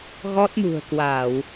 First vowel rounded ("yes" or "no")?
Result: yes